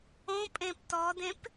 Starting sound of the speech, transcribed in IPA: õ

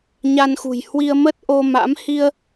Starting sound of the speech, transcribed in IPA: ɲ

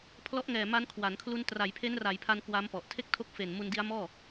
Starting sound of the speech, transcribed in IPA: pʰ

